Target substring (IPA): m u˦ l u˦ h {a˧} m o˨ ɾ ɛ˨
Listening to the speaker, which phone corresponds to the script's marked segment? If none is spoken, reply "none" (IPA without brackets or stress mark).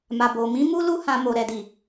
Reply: ã˧